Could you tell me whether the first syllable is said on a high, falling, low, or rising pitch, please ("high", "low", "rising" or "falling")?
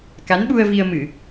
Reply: rising